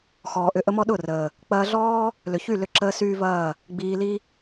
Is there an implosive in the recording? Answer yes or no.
yes